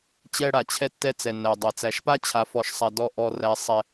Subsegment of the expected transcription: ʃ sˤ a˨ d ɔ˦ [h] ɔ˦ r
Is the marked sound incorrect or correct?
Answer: incorrect